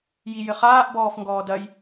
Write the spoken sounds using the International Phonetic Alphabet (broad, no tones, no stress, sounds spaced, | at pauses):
j i j ɘ χ aː ʔ b ɔː f ŋ ɡ ɔː d ɐ j